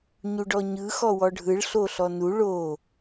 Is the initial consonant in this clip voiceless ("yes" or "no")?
no